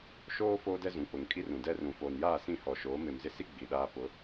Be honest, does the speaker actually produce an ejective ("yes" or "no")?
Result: yes